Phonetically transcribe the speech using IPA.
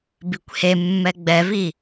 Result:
bikʷhemːɛ ɡ͡bɛvi

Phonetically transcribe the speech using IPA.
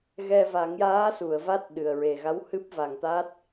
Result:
ɣɛ˧ va˨˩˦ŋjaː˧˥su˨˩˨ə̯ va˦˥t̚ɗɨ˨˩ə̯ɹe˨˩ɣa˧˥w hɨ˦˥p̚va˨˩ŋt̪a˦˥t̚

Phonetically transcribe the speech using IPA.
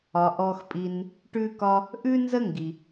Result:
ɒ˩ ʔɔ˨xpʼi˨n | ʈʉ˥kɒ˥ | ʔʉ˥nzə˥ŋɡi˩

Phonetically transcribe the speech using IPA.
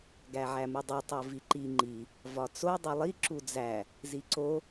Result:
ɡæʕæmudˤu tˤoviǃi ŋ͡ǃi | vɒt͡so dˤulˠi ǁud͡zæ | ziǀo

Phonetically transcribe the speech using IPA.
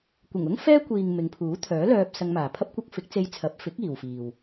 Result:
kʷɪ˨˩ŋʊ˥ŋ fɛː˥kʷiː˨ŋ mɪ˨˧ŋpʰuː˨˥ t̪ʰœː˨˥lœː˧p̚ sɐ˧ŋmaː˨pʰɐ˥p̚kʷɐ˥k̚ fɪ˨˥k̚t͡se˧j t͡sʰɐ˨˥p̚fɪ˨˥k̚ iː˨wfiː˨w

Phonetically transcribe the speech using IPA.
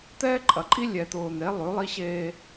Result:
t̪ɛː˦ǃʼɐ˨ǃʼi˦ lʲɛ˨t̪ʊː˨n̪e˨˦ lˠʉ˨˦lˠi˦ɕeː˦

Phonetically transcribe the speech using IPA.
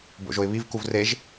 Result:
bo̰ʒoɪ̯βivkuv reʒ

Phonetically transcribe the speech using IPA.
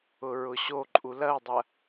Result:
ʊɹʊɕoǃʼu lɐu̯dˤɐ

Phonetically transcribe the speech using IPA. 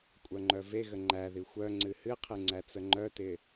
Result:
kʷʼœŋ͡ǃœveɣə ŋ͡ǃæði xʷœ ŋ͡ǀɨhɨqʰɨ ŋ͡ǀæt͡səŋ͡ǃœtɪ

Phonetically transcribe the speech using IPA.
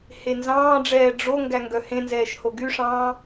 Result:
henzɑ̃ːɖ͡ʐɛː ɖ͡ʐo ŋɡæŋɡœhẽnzɛːʃ hoɡyʂɑ̃ː

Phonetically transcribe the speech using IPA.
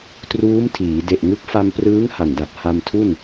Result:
truː˦˥mtʰiː˩˦ de˨˩ʔŋɯ˦˥k̚ fa˧mprɯː˦˥ŋ ha˨˩nda˨˩t̚ ha˧mtʰu˥˩n

